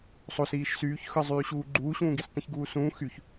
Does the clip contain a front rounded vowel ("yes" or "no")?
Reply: yes